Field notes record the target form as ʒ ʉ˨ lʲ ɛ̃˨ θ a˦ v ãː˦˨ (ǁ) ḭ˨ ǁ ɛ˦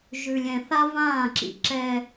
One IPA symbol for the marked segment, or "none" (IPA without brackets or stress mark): ǁ